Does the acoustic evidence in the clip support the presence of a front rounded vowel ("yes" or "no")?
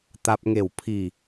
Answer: no